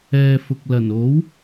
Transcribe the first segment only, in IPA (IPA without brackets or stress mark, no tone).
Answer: ɛː